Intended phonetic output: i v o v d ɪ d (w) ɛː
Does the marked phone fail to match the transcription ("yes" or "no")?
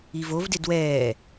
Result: no